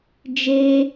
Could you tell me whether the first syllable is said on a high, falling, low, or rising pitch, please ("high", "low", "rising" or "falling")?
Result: high